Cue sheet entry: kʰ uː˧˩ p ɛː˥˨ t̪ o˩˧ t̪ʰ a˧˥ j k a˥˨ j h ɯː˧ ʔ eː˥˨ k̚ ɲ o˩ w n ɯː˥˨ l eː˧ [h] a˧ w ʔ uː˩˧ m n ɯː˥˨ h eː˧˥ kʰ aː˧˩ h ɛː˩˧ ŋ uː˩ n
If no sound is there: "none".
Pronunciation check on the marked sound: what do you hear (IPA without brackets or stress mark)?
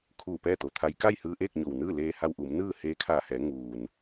h